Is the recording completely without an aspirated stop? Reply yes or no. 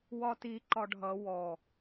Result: yes